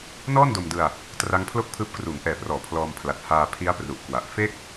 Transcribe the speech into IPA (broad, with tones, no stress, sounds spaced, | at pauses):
n ɔː˥˩ n d o˧ m d ɯ˧ a̯ | t r a˦˥ ŋ pʰ l o˥˩ k̚ pʰ ɯː˦˥ p̚ k r uː˩˦ ŋ ʔ ɛː˨˩ p r ɔː˩˦ pʰ l ɔː˧ m pʰ l a˨˩ t̚ h aː˧ pʰ i˦˥ a̯ p r u˨˩ ʔ k w a˨˩ ʔ f e˥˩ k̚